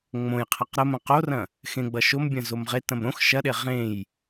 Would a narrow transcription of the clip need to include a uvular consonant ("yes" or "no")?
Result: yes